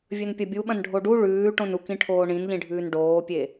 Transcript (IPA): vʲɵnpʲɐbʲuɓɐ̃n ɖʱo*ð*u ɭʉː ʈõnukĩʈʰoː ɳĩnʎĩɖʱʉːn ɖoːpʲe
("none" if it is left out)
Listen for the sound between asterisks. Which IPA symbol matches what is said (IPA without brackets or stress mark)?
ɖ